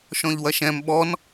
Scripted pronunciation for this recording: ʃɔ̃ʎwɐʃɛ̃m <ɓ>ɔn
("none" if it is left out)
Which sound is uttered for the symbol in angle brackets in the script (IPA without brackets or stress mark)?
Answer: ɓ